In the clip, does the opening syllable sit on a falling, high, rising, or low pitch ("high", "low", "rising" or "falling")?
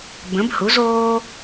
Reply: rising